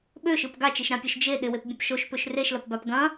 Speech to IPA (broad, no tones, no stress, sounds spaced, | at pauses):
ɓ ø ʃ ɯ p ɡ a t͡ʃ e ʃ ɾ ã pʲ ɛ ʃ d͡ʒ e ɗ ɪ w e p bʲ ɐ̃ p ʃ o ʃ p ø ʃ r e ʃ l ɐ p b a p ɡ ɐ̃